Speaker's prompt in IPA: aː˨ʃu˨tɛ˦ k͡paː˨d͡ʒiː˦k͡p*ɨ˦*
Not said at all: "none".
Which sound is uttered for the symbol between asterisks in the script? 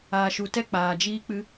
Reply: ɨ˦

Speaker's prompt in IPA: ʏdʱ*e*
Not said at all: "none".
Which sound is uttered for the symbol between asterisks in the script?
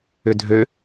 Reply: ø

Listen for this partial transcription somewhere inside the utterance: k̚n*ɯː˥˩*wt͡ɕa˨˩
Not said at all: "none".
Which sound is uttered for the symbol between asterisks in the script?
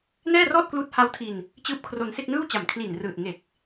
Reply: ɯː˥˩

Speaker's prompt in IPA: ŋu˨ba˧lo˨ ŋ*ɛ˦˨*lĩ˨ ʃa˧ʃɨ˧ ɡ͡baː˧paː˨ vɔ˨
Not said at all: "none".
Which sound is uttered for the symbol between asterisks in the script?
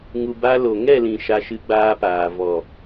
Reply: ɛ˦˨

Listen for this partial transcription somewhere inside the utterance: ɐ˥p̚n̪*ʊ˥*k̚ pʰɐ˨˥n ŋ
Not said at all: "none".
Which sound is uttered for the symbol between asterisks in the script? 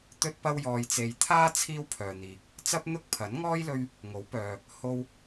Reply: ʊ˥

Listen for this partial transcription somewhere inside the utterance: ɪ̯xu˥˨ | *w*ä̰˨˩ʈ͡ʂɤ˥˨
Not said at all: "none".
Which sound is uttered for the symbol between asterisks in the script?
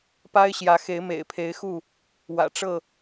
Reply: w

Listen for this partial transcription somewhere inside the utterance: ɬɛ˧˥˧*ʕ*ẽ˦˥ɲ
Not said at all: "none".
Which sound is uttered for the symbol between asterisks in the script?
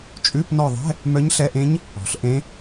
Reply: ʔ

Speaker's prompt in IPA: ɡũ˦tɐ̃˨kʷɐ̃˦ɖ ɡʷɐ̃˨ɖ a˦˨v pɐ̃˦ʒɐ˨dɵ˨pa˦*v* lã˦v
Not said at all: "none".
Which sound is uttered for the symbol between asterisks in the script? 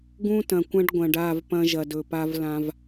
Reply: v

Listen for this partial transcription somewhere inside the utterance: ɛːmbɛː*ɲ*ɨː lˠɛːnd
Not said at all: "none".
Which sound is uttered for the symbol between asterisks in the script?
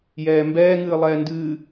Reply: ŋ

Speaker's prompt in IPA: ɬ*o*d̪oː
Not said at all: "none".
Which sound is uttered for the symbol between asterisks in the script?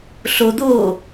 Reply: o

